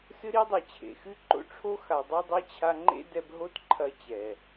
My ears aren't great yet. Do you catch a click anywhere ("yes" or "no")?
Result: yes